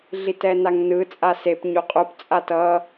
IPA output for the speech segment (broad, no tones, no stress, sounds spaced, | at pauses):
ɮ i t ɛ n a ŋ n ɯ t͡sʼ a s e p ɲ u qʼ u p t͡sʼ a t ʌ